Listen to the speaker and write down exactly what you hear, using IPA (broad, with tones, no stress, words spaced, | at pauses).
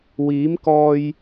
wiː˨˥m kɔː˧j